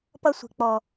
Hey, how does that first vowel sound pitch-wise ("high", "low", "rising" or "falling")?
high